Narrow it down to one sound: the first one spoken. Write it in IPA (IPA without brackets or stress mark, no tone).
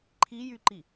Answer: ǃʰ